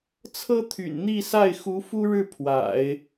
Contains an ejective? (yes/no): no